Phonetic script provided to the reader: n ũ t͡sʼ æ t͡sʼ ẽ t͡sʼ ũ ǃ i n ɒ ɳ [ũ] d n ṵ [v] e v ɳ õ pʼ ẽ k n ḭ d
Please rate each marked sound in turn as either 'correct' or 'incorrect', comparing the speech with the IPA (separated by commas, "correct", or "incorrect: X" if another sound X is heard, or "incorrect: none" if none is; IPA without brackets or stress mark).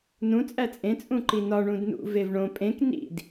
correct, correct